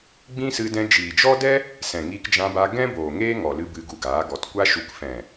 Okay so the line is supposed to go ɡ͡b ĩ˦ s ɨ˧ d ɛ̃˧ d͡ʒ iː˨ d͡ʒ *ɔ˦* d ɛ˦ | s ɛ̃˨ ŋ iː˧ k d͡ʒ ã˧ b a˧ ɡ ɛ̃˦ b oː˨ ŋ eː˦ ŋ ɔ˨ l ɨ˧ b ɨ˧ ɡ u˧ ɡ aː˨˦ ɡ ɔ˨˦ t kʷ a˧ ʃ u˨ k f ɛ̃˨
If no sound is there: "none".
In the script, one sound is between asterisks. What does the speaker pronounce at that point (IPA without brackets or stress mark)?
ɔ˦